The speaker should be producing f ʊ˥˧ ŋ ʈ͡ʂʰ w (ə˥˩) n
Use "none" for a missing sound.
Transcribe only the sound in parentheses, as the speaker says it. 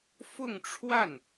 a˥˩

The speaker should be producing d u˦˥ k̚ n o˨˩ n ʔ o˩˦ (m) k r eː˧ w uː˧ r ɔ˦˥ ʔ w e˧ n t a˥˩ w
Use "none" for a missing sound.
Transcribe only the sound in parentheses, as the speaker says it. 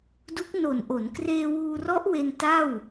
n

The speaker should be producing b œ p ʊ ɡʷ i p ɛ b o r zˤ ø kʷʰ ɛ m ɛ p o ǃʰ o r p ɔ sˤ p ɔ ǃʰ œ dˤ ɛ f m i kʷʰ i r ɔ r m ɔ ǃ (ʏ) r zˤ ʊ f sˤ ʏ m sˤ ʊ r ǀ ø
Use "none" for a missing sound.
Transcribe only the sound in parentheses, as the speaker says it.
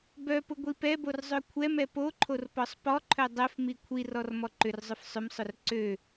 ʏ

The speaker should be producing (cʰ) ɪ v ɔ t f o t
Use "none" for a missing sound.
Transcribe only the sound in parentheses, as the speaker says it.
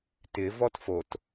t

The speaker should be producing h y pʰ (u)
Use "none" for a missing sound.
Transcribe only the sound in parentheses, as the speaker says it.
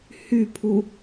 u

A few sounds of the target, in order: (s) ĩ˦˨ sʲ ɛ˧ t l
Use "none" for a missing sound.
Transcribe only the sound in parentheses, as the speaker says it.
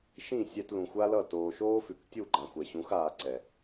ʃ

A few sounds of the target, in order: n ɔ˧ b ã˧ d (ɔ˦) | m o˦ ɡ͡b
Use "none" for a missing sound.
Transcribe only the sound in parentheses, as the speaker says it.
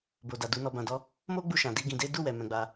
ɔ˦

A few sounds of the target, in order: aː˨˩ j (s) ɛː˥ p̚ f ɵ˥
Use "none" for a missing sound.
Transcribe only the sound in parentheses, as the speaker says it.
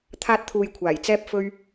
t͡s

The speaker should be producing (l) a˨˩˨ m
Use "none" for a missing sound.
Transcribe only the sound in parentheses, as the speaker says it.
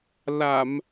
l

